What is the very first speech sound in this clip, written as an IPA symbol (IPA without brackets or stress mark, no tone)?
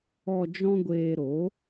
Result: ɔ